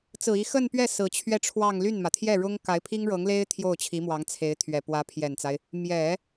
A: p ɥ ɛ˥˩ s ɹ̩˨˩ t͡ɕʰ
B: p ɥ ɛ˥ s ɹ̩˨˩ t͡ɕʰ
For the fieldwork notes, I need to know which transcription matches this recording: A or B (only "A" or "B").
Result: A